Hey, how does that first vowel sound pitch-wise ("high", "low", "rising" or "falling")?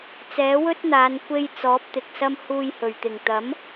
rising